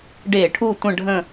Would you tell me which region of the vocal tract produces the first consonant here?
retroflex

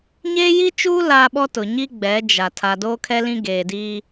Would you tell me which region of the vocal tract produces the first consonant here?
palate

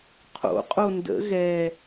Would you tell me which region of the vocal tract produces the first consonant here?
uvula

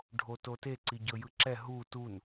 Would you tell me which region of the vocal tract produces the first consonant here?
retroflex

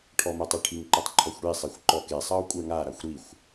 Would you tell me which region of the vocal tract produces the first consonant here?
retroflex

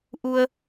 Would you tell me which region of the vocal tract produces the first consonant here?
throat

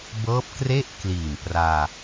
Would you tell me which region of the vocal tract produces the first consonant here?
lips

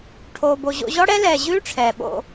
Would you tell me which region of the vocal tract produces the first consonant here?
retroflex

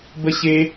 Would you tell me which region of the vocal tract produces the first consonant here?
lips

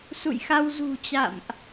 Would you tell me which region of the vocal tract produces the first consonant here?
tongue tip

